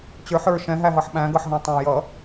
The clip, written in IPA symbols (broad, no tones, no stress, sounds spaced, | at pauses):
t͡ɕ ə˞ ħ ə˞ ʃ ɛ̃ ɦ æ ɦ ʌ ħ ɓ æ̃ ɡ ʌ ħ ɦ æ̃ tˤ ɑ̃ j ʌ